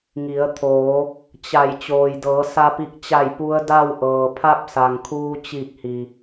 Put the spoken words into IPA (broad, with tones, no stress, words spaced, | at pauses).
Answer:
ŋi˩˧ə̯ t̪ʰoː˩˧ | t͡ɕa˧˩j t͡ɕoː˩jdɤː˩˧ sa˧pi˧˩k̚t͡ɕa˧˩j pu˧˥ə̯da˥˨wʔɤː˩pʰa˥˨p̚ sa˩ŋkʰuː˧t͡ɕi˧˩k̚hi˩